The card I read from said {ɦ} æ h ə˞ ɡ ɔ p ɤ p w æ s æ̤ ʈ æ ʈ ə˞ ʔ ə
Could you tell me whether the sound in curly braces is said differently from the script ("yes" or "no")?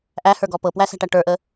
yes